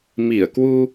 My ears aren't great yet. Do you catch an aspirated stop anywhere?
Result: no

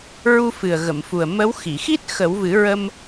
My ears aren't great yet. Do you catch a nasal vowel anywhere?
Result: no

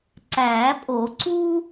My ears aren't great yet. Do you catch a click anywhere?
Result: yes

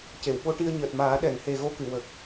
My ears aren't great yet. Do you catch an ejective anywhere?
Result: no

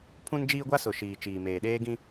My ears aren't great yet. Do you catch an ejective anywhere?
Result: no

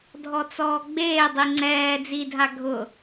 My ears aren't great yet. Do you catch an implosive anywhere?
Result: no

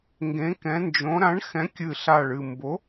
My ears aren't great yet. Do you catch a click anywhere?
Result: no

